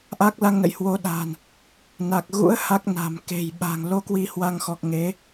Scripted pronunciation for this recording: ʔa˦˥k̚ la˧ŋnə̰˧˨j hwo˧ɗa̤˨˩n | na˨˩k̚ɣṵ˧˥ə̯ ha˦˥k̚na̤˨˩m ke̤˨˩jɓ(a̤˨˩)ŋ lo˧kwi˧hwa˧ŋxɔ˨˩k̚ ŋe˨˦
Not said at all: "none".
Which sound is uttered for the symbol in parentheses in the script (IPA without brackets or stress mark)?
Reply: a̤˨˩